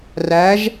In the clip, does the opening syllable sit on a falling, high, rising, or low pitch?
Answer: rising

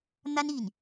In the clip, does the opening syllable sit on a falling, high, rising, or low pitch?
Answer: high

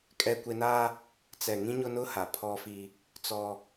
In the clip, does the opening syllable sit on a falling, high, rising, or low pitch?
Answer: high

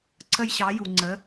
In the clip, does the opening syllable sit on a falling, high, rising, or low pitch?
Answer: high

